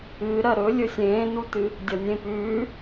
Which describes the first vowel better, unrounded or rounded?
unrounded